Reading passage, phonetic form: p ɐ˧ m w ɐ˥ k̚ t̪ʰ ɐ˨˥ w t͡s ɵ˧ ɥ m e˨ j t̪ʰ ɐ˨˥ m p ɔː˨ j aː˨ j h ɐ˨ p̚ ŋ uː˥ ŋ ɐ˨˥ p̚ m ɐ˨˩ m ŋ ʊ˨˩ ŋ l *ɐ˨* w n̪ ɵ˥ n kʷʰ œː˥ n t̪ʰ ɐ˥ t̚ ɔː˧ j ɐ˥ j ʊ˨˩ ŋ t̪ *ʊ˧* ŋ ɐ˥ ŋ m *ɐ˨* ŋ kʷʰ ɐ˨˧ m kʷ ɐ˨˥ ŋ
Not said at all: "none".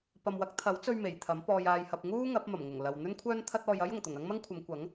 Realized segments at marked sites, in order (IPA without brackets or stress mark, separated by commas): ɐ˨, ʊ˨˩, ɐ˥